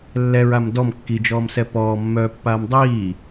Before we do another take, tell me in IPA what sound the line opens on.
lː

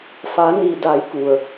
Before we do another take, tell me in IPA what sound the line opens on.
f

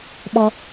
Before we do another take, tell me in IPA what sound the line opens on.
ɓ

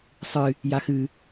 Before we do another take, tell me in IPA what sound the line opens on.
sˤ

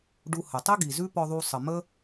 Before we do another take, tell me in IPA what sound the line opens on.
ɖ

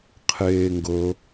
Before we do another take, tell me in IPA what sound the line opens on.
qʰ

